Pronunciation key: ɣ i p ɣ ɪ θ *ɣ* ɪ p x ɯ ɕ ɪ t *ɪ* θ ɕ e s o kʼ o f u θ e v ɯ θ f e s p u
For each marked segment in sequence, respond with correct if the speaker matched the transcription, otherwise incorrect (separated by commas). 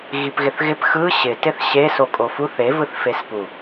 correct, correct